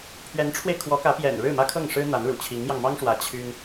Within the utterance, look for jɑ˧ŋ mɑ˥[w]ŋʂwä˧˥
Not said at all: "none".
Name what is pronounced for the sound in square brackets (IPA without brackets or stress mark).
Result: none